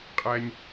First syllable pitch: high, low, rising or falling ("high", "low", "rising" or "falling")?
low